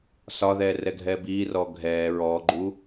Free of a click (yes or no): no